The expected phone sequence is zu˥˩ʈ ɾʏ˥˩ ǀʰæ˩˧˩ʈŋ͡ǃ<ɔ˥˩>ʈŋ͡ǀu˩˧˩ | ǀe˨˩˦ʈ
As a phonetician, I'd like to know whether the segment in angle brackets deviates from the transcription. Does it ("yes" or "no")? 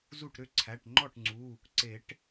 no